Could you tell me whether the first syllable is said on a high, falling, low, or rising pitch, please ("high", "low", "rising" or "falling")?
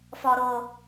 low